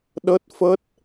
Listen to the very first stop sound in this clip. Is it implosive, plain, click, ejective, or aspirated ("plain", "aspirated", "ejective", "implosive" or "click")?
implosive